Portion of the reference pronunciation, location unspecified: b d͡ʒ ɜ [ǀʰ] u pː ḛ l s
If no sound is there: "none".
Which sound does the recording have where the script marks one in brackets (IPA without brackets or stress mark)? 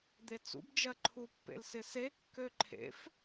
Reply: ǃʰ